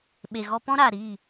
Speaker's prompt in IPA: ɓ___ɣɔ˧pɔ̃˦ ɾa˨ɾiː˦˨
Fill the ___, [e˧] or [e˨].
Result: e˨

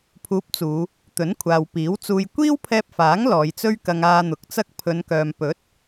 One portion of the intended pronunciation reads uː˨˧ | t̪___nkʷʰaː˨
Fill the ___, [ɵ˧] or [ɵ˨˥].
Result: ɵ˨˥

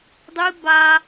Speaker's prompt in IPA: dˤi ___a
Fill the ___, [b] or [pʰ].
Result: b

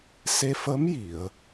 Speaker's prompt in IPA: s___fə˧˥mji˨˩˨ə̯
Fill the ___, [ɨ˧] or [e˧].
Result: e˧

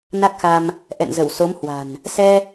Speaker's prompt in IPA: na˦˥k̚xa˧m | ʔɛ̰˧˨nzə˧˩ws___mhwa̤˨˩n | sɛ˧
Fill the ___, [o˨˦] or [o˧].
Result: o˨˦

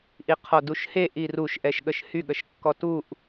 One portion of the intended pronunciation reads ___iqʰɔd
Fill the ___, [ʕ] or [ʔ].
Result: ʔ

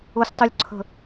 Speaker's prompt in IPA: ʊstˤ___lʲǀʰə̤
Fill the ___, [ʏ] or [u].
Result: u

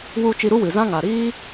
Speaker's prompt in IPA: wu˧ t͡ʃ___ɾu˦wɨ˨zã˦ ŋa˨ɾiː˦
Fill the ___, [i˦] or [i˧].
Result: i˧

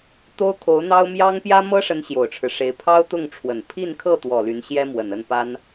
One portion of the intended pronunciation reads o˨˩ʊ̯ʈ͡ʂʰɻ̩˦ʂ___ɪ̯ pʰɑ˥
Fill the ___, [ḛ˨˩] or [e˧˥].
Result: e˧˥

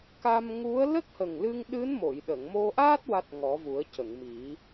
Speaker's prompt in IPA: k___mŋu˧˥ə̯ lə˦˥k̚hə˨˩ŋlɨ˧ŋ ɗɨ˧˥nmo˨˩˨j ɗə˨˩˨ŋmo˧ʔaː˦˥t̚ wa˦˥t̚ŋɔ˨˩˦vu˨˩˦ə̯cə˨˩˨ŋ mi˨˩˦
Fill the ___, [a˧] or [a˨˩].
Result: a˧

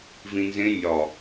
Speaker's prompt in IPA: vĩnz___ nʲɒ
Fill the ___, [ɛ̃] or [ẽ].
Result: ẽ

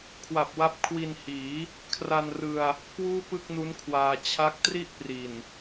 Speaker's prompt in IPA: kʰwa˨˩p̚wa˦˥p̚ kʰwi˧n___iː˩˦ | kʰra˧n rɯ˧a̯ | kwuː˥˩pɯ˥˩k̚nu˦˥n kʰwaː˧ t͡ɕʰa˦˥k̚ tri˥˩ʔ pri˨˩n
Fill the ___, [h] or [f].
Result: h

